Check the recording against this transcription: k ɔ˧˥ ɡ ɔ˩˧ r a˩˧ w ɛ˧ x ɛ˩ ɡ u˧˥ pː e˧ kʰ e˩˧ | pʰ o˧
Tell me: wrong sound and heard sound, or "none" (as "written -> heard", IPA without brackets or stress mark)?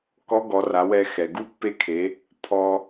o˧ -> ɔ˧